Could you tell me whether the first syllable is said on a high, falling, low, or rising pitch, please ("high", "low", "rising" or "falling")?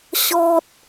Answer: high